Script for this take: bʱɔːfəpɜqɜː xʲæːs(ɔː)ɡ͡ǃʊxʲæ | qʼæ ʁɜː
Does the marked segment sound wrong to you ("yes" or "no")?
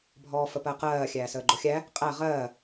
yes